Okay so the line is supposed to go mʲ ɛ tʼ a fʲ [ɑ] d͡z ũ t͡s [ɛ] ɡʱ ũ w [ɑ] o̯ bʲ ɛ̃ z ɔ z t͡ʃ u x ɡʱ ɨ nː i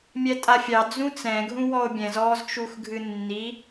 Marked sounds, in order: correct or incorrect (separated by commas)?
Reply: correct, incorrect, incorrect